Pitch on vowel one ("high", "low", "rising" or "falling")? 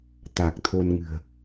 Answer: low